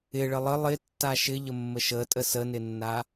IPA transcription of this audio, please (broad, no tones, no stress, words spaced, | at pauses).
ɪɭə lˠə lˠɪtːa ʃɪʎəmːə ʃətʼə sənɪnːa